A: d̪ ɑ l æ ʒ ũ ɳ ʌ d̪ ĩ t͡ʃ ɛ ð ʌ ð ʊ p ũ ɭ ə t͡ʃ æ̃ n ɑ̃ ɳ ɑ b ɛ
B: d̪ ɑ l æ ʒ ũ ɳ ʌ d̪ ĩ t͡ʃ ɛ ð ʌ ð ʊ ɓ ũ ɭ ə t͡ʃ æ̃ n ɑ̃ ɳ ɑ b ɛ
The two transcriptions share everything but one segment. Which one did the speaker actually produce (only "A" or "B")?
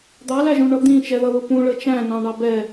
A